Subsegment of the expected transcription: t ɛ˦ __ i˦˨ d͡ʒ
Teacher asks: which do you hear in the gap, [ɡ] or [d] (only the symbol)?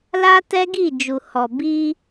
ɡ